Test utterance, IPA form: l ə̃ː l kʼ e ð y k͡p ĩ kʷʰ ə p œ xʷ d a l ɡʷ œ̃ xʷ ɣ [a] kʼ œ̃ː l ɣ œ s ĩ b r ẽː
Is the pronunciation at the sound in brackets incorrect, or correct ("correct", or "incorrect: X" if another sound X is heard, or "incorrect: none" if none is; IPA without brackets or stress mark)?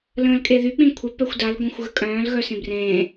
incorrect: ə